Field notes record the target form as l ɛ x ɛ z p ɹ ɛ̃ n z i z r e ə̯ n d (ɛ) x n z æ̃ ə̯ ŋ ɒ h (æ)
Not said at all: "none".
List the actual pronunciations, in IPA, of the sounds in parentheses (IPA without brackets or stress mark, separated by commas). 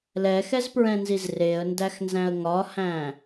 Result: æ, æ̃